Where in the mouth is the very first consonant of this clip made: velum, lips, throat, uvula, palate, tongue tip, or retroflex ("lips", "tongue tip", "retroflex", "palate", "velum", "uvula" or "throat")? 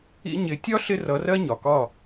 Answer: palate